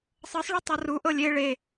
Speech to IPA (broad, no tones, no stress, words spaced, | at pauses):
sˤɤsˤɭo tˤɤruʔɤ lʲe ɭe